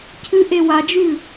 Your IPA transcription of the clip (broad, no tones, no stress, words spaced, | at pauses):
cʰɨʔe wad͡ʒʉ